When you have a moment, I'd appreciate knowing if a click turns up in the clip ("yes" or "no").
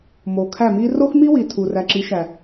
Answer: yes